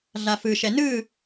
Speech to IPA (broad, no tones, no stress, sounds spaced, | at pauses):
ɮ a f ɯ ʃ ɛ n ɯ